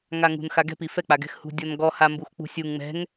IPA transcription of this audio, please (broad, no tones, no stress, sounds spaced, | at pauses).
ŋ a ŋ ṳ n x a ɡ ɛ̤ p i f ɛ k͡p a ɡ ɛ̤ x h ṳ dʲ ɔ n ɡ ɔ h a m b u x k͡p ṳ sʲ u ŋ ŋ͡m ɛ̤ ŋ